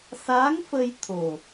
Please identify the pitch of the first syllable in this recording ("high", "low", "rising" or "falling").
rising